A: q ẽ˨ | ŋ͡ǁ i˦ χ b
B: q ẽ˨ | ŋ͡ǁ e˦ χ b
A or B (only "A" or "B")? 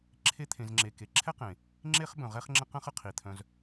B